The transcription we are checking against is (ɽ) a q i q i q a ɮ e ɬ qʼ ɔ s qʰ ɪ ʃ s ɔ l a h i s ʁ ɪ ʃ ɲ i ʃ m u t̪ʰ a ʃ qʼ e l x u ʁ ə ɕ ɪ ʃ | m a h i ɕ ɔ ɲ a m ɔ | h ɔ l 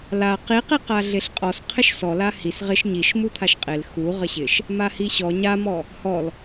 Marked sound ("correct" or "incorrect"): incorrect